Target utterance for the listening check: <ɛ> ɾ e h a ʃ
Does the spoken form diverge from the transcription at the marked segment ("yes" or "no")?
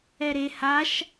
no